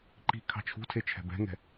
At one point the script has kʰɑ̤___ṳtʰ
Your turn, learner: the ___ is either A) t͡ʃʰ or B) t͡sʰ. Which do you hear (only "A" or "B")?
A